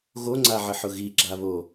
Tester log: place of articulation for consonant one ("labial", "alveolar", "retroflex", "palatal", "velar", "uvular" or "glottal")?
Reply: velar